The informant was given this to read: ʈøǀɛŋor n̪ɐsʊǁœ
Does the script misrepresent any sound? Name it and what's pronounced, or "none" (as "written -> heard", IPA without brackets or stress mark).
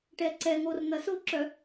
ø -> ɛ